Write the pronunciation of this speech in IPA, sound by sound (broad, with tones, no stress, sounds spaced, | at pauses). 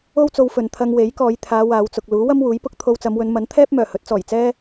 o˥ w t͡s o˧ w f ɵ˨ n t̪ʰ ɐ˧ ŋ w e˨˥ j k ɔː˨˧ j t̪ʰ aː˨˧ w aː˨˧ w t͡s ʊ˨ k̚ l uː˨˥ w ɐ˥ m w uː˨˥ j p ʊ˥ k̚ t̪ʰ o˧ w t͡s ɐ˨˧ m w ɵ˨˧ n m ɐ˨˥ n t̪ʰ ɛː˥ p̚ m œː˨˩ h ɵ˨˥ t̚ t͡s ɔː˨˩ j t͡s ɛː˥